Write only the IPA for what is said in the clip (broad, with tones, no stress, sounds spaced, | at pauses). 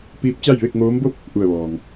p iː˧˥ p̚ t͡ɕ a˥˨ j ʋ e˥˨ k̚ ŋ oː˧˥ m b o˥˨ p̚ | ʔ u˧˩ ə̯ ʋ ɔː˩ ŋ